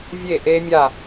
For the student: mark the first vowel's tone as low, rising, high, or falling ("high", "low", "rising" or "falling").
falling